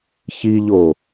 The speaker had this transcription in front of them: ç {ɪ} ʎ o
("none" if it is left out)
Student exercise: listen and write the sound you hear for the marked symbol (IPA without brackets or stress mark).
i